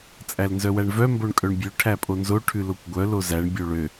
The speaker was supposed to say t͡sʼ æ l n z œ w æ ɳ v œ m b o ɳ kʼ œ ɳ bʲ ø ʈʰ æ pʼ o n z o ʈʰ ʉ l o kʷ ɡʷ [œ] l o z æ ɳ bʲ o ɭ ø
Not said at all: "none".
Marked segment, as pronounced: œ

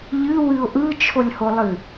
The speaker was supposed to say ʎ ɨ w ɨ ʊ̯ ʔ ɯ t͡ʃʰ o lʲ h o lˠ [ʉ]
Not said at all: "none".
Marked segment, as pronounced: ɨ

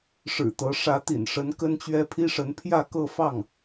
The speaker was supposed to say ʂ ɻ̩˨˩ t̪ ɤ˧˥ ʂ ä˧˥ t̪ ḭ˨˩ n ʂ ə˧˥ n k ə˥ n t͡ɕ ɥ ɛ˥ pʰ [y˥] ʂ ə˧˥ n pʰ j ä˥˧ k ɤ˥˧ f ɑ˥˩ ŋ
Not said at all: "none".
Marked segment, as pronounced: i˥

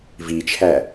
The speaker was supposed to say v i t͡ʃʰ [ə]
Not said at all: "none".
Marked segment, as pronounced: æ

